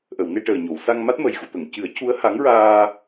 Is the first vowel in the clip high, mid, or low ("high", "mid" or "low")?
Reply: mid